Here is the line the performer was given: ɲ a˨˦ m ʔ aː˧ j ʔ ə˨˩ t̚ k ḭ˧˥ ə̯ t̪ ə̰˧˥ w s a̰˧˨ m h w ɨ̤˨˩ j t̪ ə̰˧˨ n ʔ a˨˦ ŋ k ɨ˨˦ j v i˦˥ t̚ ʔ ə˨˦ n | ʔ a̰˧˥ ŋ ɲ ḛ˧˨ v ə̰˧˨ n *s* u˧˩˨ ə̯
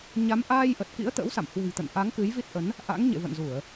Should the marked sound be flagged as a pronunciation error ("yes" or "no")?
yes